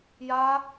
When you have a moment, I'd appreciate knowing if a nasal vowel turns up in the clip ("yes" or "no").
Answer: no